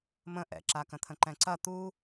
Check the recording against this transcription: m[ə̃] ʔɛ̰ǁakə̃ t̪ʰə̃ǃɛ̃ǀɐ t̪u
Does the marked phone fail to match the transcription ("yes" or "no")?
no